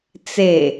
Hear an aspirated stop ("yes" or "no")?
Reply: no